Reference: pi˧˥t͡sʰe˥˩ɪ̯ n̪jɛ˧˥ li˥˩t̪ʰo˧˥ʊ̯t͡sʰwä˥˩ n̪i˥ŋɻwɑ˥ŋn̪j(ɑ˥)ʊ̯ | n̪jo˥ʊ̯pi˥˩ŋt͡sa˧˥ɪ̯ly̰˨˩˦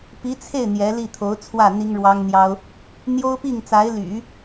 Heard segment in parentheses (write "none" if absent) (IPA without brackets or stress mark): ɑ˥